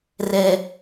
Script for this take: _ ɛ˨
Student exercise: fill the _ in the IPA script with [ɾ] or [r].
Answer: r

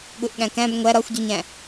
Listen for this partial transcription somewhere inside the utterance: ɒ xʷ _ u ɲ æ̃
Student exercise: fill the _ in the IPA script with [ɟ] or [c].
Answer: ɟ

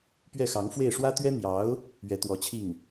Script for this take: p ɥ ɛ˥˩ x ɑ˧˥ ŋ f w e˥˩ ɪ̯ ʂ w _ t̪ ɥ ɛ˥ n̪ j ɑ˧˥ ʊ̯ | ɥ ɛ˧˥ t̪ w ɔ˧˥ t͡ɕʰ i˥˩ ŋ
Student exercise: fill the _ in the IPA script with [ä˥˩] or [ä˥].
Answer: ä˥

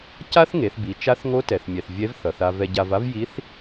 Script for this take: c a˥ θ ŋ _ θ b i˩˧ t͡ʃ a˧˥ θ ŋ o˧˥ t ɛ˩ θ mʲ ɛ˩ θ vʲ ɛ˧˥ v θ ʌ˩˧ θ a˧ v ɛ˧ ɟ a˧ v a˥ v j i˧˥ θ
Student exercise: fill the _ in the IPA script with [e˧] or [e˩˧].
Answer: e˩˧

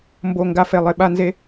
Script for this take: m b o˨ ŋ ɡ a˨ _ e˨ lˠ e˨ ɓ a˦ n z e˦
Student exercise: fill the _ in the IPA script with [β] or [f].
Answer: f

